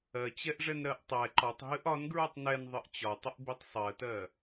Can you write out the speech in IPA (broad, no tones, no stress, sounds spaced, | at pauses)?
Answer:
ɜ t͡ɕ ɛ ʔ ʐ ɛ n ɾ ɜ ʔ tˤ ɛ ǃ ɒ tˤ ɦ ɨ ʔ ɒ n ɡ ɹ ɨ tˤ n ɛ n ðˤ ɨ ʔ t͡ɕ ɒ tˤ ə ʔ b i tˤ sˤ ɜ t ɜ